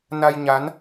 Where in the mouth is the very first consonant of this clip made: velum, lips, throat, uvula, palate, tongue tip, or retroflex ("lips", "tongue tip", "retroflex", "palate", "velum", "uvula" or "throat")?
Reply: tongue tip